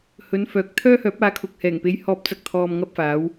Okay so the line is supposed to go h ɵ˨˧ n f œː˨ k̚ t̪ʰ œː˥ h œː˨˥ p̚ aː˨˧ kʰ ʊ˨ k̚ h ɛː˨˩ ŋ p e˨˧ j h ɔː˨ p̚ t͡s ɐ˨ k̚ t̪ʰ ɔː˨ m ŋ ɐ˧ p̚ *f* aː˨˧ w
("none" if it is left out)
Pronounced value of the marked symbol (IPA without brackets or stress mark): f